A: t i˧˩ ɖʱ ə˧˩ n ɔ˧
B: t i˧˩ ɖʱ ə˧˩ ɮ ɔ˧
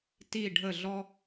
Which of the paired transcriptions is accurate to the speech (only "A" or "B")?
B